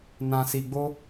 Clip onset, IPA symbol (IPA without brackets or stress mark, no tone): n